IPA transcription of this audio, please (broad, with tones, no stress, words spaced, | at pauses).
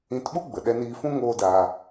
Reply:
ĩ˧tɓu˦ɡ͡bə˨ ɗɛ˧niː˧fũ˦ ŋoː˦daː˧